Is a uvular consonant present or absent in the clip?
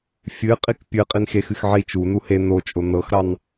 present